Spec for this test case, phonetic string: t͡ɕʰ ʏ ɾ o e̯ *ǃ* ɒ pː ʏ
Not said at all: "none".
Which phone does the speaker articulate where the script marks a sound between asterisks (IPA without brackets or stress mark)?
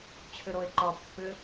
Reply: ǃ